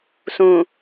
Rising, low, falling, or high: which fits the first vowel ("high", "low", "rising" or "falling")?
low